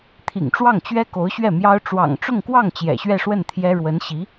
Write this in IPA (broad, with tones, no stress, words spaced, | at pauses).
t̪ʰḭ˨˩ŋʈ͡ʂwɑ˥˩ŋt͡ɕɥɛ˥ ko˧˥ʊ̯ɕɥɛ˥˩mjɑ˥ʊ̯ ʈ͡ʂwɑ̰˨˩ŋʈ͡ʂʊ˥˧ŋkwɑ˥˩ŋ t͡ɕjɛ̰˨˩ɕɥɛ˥˧ʂwə˥˩n t̪ʰjɛ˥ ɻwə˧˥nɕi˧˥